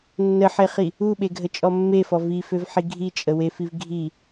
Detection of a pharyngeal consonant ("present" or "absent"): present